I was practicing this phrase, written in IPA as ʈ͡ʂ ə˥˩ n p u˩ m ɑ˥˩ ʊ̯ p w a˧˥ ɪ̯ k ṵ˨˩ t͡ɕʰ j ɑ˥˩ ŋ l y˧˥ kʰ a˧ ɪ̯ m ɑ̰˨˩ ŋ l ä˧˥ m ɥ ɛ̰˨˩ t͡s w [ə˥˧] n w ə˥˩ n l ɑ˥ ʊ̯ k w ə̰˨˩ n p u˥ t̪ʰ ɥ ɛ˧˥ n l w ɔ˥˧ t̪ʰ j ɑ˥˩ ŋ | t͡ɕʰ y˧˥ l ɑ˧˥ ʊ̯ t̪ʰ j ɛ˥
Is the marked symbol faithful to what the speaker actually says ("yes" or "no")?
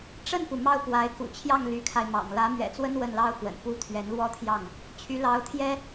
no